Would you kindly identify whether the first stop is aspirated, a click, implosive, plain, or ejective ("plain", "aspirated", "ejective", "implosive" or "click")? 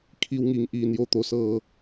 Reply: aspirated